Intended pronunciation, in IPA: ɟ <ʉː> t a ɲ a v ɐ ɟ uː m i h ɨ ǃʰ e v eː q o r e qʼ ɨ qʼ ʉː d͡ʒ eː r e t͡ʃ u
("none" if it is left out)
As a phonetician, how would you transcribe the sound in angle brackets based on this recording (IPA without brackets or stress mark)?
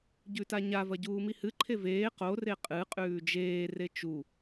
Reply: ʉ